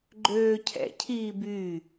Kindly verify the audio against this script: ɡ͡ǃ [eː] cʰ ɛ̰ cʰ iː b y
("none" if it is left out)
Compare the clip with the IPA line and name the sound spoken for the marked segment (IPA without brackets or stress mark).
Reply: øː